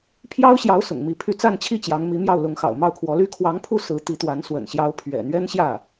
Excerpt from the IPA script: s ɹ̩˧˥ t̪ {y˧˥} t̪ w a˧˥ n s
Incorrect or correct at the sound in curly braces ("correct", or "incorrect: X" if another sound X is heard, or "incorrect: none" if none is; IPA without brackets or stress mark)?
incorrect: i˧˥